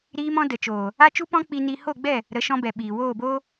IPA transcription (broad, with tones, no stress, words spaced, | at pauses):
ɾiː˧mɔ̃˧ də˨t͡ʃoː˨ | a˦t͡ʃu˦pɔ̃˦ k͡pi˦ni˦ ho˦˨ɡ͡bɛ˦˨ | ɾə˨˦ʃɔ̃˧bɛ˨ ɓiː˨woː˦˨boː˦